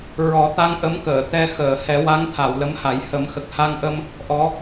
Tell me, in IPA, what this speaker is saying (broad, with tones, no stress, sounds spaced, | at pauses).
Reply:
ɹ ɔ˨˩˦ t̪ a˧ ŋ ʔ ə˧˥ m k əː˨˩˨ t̪ ɛ˧ x əː˨˩˨ h ɛ˨˩˦ w a˧˥ ŋ t̪ʰ a˨˩˨ w l ə˧˥ m h a˨˩˦ j h ə˨˩˦ m x ə˨˩ k̚ h a˧ ŋ ʔ ə˧ m | ʔ ɔ˧˥